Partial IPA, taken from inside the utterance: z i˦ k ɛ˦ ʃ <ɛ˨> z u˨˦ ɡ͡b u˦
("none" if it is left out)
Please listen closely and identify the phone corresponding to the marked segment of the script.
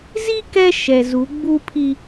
ɛ˨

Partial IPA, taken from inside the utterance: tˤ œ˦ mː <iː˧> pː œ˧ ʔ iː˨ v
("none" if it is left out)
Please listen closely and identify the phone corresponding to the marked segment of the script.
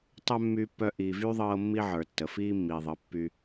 yː˧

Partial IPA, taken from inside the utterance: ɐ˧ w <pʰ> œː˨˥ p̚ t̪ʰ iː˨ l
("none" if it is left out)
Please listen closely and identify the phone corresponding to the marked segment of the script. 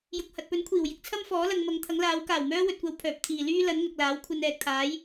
pʰ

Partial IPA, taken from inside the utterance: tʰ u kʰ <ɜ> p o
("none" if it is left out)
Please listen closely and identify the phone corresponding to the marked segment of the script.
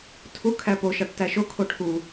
æ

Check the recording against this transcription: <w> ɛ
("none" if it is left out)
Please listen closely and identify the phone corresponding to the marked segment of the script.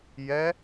j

